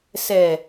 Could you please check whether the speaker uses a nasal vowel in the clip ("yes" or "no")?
no